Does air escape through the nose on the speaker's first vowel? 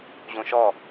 yes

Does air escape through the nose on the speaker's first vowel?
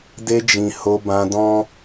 no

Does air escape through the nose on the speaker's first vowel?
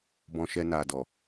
yes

